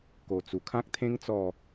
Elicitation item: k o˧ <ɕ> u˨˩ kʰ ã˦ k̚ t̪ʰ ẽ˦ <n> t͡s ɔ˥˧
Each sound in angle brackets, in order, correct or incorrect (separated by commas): incorrect, incorrect